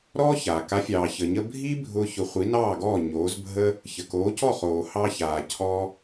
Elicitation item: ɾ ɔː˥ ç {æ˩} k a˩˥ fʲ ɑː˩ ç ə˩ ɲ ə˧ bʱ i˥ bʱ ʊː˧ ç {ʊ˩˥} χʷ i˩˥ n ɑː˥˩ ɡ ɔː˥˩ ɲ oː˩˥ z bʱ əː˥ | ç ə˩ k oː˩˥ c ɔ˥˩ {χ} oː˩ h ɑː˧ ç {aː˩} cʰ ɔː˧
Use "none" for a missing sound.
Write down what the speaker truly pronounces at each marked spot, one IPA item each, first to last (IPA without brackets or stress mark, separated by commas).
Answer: a˩, ʊ˩˥, χ, aː˩